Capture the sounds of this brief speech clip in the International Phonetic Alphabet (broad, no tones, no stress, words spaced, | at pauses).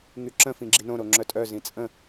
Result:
ŋyǁə̃ fĩɡ͡ǁinõ ɾoŋ͡ǁœtʼœ zĩt͡sʼə̃